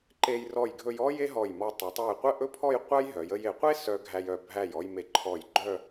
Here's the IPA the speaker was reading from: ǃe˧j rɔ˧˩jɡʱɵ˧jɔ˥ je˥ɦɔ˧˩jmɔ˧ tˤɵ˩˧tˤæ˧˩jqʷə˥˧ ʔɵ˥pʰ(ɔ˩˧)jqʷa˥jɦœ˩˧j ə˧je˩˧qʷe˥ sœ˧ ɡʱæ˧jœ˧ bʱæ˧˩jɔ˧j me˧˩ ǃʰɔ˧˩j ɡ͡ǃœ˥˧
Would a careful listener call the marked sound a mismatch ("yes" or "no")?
yes